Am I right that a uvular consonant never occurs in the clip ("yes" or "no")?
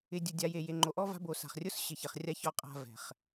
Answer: no